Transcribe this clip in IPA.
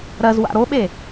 ɾɜzwa̰ ɾoɓe

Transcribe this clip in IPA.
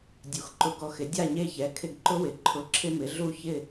dʲu˩˧xǃʊ˧ɡɔ˧xɪ˩˥ dʲa˥˨ɲe˥˨çɛ˩˥ kʰɪ˧ɡǃʊ˥wɪ˩˧ ǃʰʊ˧˥˧ ǁʰɪ˥mɪ˩˥ ɮu˥˨çɪ˥˨

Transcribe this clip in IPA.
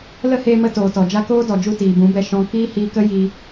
lə˦heː˧mə˧ toː˨tɔ˨d͡ʒa˦ koː˦dɔ˨d͡ʒu˧ tiː˨bũ˨˦bɛ˧ʃɔ̃˧ kiː˦hiː˧kə˦ ji˧

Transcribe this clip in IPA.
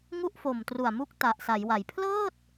ŋu˥˩ʔfo˨˩mtru˨˩a̯mu˦˥k̚ ta˨˩ʔsa˩˦jwa˩˦j pʰlɤː˥˩t̚

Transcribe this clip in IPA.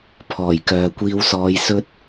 pʰɔː˨˩jkœː˨kʷiː˧wsɔː˧j sɵ˥t̚

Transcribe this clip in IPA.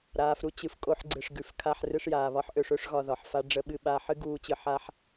ɾaː˨fɾu˧ t͡ɕɨ˨fkʼo˧ħ ɡ͡ǀɨ˨ʂɡʉ˨fkʰa˧ħ rɨ˧ʂjaː˨βɒ˧ħʔø˧ʂ ø˦ʂɣɒ˧ ðɒ˨ħfa˦ ɖ͡ʐə˧ɓɨ˧ɓa˧ħɨ˦ ɡuː˦t͡ɕɨ˧ ħa˦ħ

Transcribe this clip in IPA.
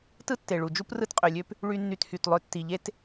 tɯ˥tːe˩ɭu˩d͡ʒu˥p rɯ˥tqʼø˩lʲø˥p | ɭy˥nːy˧thy˩tlˠø˧ tːi˩ʎe˥t

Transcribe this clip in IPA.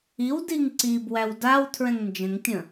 iwdiŋ ǀibwæw daw tʰɹɛ̃ŋnd͡ʒə̃ŋtʲə̃

